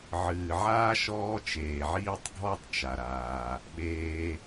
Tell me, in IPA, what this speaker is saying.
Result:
ʕ ɨː˩ ʕ aː˥ ʃ ɔː˦ t͡ʃ eː˩ ʕ iː˥ tˤ ɡʱ ɔ˦ tˤ t͡ʃ a˩ ɾ aː˩ | ɓ eː˨

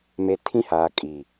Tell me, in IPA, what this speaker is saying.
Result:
m e˨ tʰ ĩ˦ h aː˨ kʼ iː˨

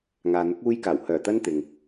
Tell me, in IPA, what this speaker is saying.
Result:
ŋ aː˨ n̪ ʊ˨˥ k̚ uː˧ j k aː˨˩ w h œː˨˩ t̪ ɐ˧ n t̪ ɪ˨ ŋ

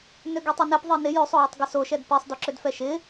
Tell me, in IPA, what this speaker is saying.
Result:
n ø ɡ ø tˤ i n ɛ p ðˤ e n ɪ j ø sˤ o j ɪ tˤ ɡ ɪ s o ʃ ɛ d p i sˤ d o ǁ ø d f ɛ ʃ ɪ

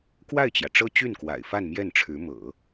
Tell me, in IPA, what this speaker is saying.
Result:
k w a˥˩ ɪ̯ t͡ɕ j ä˩ ʈ͡ʂ ɤ˥ t͡ɕ y˥˩ n k w a̰˨˩ ɪ̯ f a˥˧ n m j ɛ˥˩ n ʈ͡ʂʰ ɻ̩˧˥ m ɤ̰˨˩˦

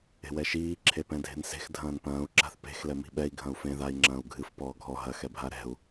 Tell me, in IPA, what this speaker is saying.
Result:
e̤ w ɛ ʃ iː ǁʰ e p ɛ̃ dʱ e̤ n s e̤ x dʱ ɐ̃ː n p ɐ̃ː u̯ ǁ a̤ θ p e̤ x l ɛ m i̤ ɓ ɛ i̯ ɡʱ ɐ̃ u̯ f ẽ ð a i̯ ŋ͡ǁ ɐ̃ː u̯ ɡʱ ɨ f p ɔː ɡʱ ɔ ɦ ɐ x ɛ bʱ a ɾ ɛ̤ u̯

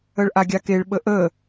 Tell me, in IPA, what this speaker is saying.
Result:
ə ɭ ʔ a ɡʲ a k e ɭ ɓ ə ʔ ə

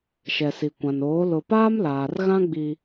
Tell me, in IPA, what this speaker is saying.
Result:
ʃ ɛ˨ s i˨ kʷ ã˨ n oː˨˦ l ʊ˨ p aː˦ m l aː˨ r ɣ ã˦ ɡ͡b i˦

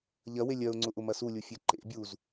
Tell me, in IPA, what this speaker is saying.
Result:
ʎ ɐ w e lʲ ɜ ʊ̯ ŋ͡ǀ ʊ ʔ ʊ m ɐ s u lʲ u fʲ ɛ ǃ ḛ bʲ u z

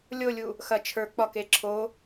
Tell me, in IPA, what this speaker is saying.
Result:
lʲ o lʲ u | x ɐ t͡ʃʰ ə˞ k͡p ɒ k e ǁʰ o

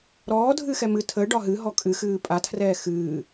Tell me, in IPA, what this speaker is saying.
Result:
ɾ ɔː dʱ ɨ x ɛ m ɨ tʰ ə ɖ ɒ ɦ ɨ ɦ ɔ kʼ ɨ x ɨː pʼ a tʰ r ɛː x ɨː

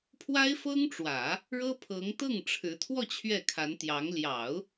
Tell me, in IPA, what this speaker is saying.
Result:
pʰ w a˥ ɪ̯ f ɤ˥ ŋ ʈ͡ʂ w ä˨˩˦ | ɻ ɤ˥ pʰ ɤ˧˥ ŋ t̪ ɤ˥˩ ŋ ʈ͡ʂʰ ɻ̩˧˥ t̪ʰ w ɔ˥˧ t͡ɕʰ ɥ ɛ˥˩ kʰ a˧˥ n t̪ j ɑ˧˥ ŋ l j ɑ˨˩˦ ʊ̯

